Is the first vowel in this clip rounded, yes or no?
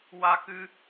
no